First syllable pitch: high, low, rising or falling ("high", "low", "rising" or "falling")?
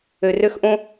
low